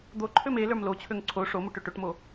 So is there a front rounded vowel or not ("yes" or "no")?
yes